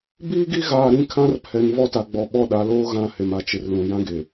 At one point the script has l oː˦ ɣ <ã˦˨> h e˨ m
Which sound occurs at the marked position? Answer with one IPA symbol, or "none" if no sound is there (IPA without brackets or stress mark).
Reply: ã˦˨